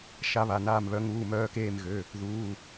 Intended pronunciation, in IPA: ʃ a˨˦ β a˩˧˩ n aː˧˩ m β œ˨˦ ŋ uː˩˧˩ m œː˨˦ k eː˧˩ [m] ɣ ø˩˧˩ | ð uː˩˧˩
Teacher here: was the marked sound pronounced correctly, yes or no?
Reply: yes